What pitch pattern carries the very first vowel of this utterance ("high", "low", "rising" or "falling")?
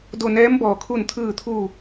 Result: falling